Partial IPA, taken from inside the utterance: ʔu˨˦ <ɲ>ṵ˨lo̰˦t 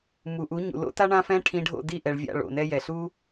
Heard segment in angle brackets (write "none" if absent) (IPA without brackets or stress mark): ɲ